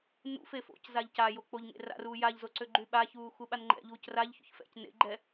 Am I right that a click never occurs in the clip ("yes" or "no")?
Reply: no